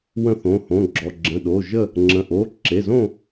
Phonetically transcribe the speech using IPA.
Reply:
wə̃˥˨θõ˩˧˩hõ˩˧˩ɡ͡ǁɔ˩˧˩ ɡ͡ǁə̃˩˧˩ɗo˩˧˩ʒə˥˨ | ŋ͡ǁə̃˩˧˩ʔo˩˧˩ ǁe˩˧˩zõ˥˨

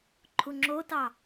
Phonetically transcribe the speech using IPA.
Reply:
ǃʰuŋ͡ǁotɑ

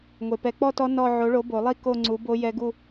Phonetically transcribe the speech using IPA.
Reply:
ŋʷe˩pɛ˨˩˦k͡pɔ˥˧tɔ˦˥ nɔ˥˧ ʕo˨˥ɭo˨˥bo˨˩˦lˠi˥˧ ko˥˧ŋ͡ǀu˨˥ bo˦˥ jɛ˦˥ɡu˥˧

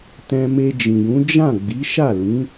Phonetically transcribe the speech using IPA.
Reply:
tɛ̃˧me˧d͡ʒĩ˨jũ˨˦ d͡ʒã˦˨ ɡ͡bi˨˦ʃa˦˨lĩ˨˦

